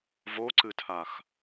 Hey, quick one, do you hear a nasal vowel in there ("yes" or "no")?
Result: no